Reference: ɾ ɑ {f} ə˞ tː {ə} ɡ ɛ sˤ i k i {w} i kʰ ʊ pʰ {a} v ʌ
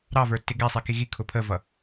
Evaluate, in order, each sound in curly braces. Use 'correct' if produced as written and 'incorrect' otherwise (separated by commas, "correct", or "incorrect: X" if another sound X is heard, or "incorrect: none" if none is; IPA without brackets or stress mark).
incorrect: v, incorrect: ɪ, incorrect: ɣ, incorrect: ə